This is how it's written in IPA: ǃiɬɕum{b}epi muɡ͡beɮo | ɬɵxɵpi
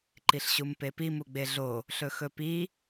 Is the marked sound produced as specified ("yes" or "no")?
no